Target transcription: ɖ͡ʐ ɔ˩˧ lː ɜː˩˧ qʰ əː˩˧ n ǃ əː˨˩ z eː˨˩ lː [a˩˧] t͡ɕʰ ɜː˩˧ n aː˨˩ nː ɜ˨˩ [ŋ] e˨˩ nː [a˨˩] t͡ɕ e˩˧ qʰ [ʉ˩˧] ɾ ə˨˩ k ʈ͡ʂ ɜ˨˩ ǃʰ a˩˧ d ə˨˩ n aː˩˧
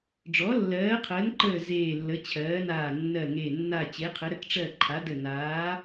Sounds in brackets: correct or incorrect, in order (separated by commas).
incorrect, correct, correct, incorrect